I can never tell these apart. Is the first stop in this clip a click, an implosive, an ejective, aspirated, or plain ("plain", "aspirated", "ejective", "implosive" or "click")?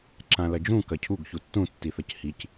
click